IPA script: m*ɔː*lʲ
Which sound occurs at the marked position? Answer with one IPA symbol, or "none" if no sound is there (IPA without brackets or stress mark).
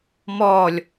ɔː